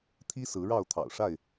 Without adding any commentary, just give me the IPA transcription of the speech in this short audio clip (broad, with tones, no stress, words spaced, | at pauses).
t̪ʰi˦ sɹ̩˨˦ɻɑ˥˨ʊ̯ t̪ʰɑ̰˨˩ʊ̯ʂa˥˨ɪ̯